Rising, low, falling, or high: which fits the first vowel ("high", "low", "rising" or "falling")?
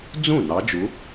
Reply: falling